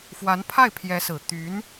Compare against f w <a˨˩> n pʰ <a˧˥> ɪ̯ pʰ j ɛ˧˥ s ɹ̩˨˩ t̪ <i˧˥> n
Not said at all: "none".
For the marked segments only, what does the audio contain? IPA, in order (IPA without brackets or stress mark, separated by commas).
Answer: a˧˥, a˥˩, y˧˥